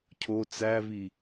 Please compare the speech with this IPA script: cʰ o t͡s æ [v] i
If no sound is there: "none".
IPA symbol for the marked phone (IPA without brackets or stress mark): v